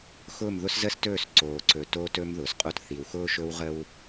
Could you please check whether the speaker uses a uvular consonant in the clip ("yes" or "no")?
yes